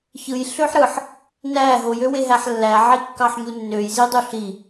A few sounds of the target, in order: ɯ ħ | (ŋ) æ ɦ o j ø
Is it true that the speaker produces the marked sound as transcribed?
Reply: no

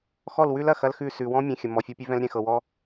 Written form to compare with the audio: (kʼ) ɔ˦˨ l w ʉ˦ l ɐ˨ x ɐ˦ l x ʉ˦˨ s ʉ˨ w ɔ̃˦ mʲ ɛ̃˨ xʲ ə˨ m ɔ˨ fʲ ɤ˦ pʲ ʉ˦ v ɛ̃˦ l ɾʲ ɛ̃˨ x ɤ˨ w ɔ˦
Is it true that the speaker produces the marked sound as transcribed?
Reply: no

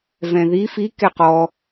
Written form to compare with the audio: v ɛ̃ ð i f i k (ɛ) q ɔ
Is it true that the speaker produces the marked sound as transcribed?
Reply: yes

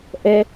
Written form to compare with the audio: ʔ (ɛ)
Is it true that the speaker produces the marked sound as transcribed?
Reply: yes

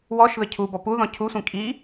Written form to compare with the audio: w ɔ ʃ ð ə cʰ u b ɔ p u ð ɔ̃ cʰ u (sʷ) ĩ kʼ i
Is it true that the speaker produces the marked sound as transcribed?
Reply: yes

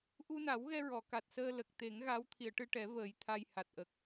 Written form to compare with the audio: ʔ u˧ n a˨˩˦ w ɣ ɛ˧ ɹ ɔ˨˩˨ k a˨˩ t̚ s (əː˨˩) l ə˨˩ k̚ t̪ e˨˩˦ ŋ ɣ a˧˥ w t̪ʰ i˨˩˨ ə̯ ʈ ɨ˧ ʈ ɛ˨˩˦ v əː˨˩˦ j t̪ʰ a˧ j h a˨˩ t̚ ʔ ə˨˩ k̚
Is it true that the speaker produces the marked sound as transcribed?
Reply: no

